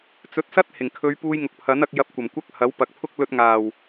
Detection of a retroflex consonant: absent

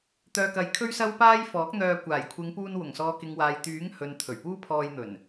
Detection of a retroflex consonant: absent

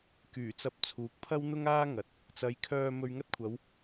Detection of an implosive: absent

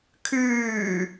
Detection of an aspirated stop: present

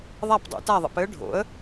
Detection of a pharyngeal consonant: absent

